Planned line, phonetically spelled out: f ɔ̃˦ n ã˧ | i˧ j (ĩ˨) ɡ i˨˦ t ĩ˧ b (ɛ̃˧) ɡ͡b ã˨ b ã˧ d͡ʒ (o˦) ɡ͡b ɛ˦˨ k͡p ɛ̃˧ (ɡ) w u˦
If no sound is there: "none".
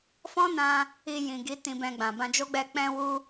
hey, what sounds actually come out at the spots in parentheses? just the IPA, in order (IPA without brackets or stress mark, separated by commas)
ĩ˨, ɛ̃˧, o˦, none